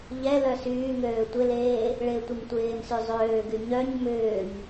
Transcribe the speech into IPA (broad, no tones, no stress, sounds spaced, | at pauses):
ʎ ɛ l œ s yː ŋ øː tʷ ɪ l eː | ɭ ɪː tʷ ɪ m tʷ ɪː m s y zˤ øː ɡ y ɲ œ ɲ m ʏː ɲ